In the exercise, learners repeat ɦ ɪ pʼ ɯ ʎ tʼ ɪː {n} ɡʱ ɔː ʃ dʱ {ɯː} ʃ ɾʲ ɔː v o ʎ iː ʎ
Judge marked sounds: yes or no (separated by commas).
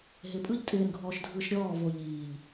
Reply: yes, yes